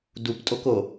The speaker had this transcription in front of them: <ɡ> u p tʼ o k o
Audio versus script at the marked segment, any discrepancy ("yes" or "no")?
yes